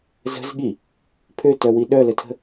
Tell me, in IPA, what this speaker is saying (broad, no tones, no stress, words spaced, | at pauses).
zə̤zɠi | pʰøtœwi ɗœlətʰə̤